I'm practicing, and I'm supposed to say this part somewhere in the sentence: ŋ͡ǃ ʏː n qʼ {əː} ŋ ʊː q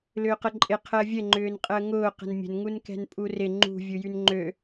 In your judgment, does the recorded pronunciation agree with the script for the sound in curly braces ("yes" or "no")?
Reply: yes